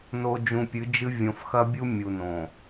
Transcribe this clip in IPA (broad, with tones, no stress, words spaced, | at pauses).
no˨d͡ʒũ˨pʲɨ˨˦d͡ʒɨ˦ vʲõ˨fxɐ˦bʲu˦ mʲu˨nõ˨